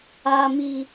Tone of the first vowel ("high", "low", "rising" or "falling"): low